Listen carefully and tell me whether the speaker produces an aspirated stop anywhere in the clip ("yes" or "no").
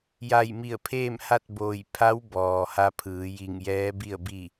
yes